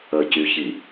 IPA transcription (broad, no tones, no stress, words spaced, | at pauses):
əcyçi